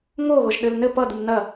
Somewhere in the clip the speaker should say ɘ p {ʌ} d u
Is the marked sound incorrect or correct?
correct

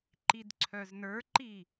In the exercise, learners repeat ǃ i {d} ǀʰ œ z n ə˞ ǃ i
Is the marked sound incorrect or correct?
correct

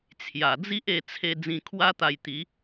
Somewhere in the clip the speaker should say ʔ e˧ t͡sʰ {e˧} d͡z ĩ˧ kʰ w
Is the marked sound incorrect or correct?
correct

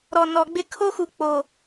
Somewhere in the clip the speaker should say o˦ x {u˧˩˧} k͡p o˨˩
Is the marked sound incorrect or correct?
incorrect: u˨˩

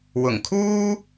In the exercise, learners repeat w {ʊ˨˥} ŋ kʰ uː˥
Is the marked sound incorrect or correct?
incorrect: ʊ˨˩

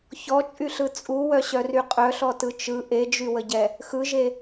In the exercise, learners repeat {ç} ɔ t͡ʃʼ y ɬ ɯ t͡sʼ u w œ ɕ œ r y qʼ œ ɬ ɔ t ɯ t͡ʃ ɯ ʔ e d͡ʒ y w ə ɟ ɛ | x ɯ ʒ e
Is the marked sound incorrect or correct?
correct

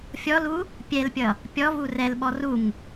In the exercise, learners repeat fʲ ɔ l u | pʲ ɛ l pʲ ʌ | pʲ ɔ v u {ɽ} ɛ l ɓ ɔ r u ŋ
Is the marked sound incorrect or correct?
incorrect: r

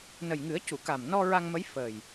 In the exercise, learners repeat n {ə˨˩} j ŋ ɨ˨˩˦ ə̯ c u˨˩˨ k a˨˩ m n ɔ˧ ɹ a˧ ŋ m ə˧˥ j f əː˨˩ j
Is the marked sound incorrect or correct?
correct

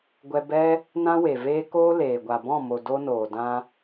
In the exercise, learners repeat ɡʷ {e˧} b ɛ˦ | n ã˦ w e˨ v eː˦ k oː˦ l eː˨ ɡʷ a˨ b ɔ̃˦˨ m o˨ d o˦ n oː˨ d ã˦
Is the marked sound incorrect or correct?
incorrect: ɛ˧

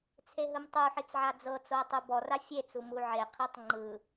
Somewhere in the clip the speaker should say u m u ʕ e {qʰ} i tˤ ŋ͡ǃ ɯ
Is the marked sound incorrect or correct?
correct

